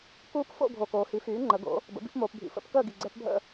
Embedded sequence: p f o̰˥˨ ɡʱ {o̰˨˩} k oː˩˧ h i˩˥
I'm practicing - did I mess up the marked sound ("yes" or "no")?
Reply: yes